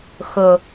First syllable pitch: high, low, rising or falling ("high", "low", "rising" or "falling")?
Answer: low